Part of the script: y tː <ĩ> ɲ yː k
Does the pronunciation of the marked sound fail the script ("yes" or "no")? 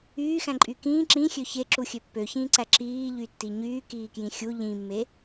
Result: yes